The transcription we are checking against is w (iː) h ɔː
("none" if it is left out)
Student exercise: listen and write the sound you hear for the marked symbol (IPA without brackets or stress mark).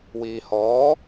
iː